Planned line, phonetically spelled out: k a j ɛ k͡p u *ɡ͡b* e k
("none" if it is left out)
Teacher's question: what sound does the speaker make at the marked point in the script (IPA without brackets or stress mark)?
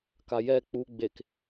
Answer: ɡ͡b